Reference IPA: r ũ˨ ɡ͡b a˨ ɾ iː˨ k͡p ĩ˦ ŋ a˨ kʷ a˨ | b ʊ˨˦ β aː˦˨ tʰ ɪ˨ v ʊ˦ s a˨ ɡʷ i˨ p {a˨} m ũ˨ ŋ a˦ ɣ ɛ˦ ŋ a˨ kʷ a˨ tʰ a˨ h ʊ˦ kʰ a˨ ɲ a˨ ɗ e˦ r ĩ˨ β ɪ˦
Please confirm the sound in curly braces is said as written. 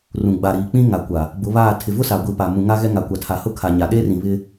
yes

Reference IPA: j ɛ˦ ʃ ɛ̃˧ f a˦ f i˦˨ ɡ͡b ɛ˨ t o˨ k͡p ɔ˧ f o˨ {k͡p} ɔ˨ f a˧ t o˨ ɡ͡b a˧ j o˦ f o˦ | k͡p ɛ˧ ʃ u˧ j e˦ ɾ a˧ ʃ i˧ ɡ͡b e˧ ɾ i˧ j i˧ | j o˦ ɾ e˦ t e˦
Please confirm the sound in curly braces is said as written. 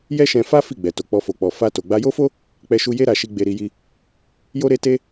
yes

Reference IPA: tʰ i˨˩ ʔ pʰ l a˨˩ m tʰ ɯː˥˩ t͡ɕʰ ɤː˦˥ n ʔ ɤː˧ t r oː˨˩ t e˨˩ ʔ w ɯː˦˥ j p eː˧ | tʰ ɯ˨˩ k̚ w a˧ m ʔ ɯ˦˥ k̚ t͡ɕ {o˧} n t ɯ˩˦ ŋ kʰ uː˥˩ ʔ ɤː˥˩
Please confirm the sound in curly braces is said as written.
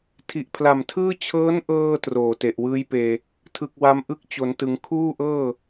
no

